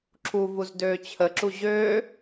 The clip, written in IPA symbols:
ǁʰ u v u z d øː t͡ɕʰ ə ǁ u ʑ øː

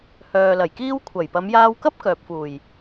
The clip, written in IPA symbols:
h œː˨ l ɐ˨˩ j k iː˥ w kʷʰ ɐ˨˩ j p ɐ˨˧ m j aː˧ w k ɐ˥ p̚ k œː˨ p̚ f uː˨˩ j

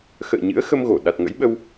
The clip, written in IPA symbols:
x ə̰ː˧˨ ɲ ɨ̰˧˥ ə̯ x ə˧ m ɣ o˧˩ ɗ a˨˩ t̚ ŋ ə̰˧˥ j ɓ ə˧ w

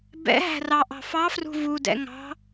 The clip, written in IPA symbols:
b ɛ̰ ɦ æ̤ r ɑ ʔ ɑ̤ f ɑ f r ṳ v u d ɛ̰ ŋ ɑ̤

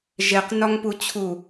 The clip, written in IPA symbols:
ʒ e q n ɒ ŋ p u t͡ɕʰ u

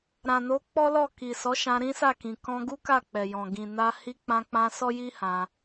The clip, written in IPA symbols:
ɾ ã˨ n o˨˦ k͡p ɔ˦ l ɔ˦˨ k i˨ s ɔ˨˦ ʃ ã˧ ɾ ĩ˦ s a˦˨ k ĩ˨ k ɔ̃˧ ɡ u˦ k a˦˨ k͡p ɛ˨ j ɔ̃˨ ɡ ĩ˨ n a˧ h i˧ k͡p ã˧ k͡p ã˧ s ɔ˦ j i˦ h ã˧

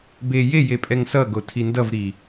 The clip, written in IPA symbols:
b e j e j e pʼ ɛ ŋ s ʌ ɡ o tʰ i n d ʌ v ɾ i

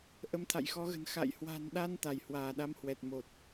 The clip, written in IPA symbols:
ʔ ə˨˦ m t̪ʰ a̰˧˨ j x ɔ˨˦ ɣ ə̤˨˩ n x a̰˧˨ j h w a̤˨˩ n ɗ a˧ n t̪ a˧˩ j h w aː˧˩ ɗ a˧ m h w ɛ˨˩ t̚ m o˨˩ t̚

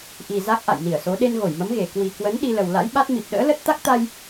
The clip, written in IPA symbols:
ʔ i˨˩ z a˦˥ k̚ ʔ a̰˧˨ j n i˧˩ ə̯ s o˨˦ ɗ e˧ n ɣ o˧˩ j m ə˨˦ m ɣ e˧˩ k w i˨˩ k w ə˨˦ n ɗ i˧ l ə˨˩ w l a̰˧˥ j ɓ a˦˥ t̚ m i˨˩ p̚ ɗ ə̰ː˧˥ l ə˦˥ t̚ t̪ a˦˥ k̚ t̪ a˧ j

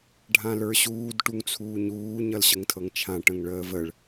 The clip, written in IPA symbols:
ɖʱ ã l ə˞ ɕ uː d ʈ u ŋ t͡sʰ uː ɲ uː ɲ ʌ l ɕ ə ŋ tʰ ɤ ŋ t͡ʃʰ ã ʈ ə̃ ŋ ɭ əː v ə ɭ

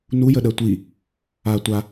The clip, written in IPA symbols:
n u j ə ɗ ɜ tʷ i | a tʷ a

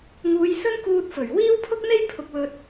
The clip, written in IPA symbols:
ŋ uː˨˧ j s ɵ˥ n k uː˧ t̚ f ɵ˨˩ ɥ w iː˥ w pʰ ʊ˥ k̚ n̪ e˥ j pʰ ʊ˧ k̚ w ɵ˧ t̚

